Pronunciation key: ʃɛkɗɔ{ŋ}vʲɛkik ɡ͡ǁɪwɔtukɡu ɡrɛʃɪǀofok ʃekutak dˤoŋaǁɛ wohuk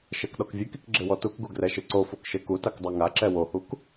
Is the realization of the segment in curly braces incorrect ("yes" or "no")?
yes